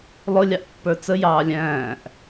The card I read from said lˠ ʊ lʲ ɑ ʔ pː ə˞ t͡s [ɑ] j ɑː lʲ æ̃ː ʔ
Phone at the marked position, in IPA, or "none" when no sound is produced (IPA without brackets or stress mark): ə